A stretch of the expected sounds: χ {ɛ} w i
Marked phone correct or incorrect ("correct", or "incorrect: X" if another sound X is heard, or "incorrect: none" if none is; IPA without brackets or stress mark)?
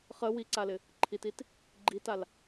incorrect: ə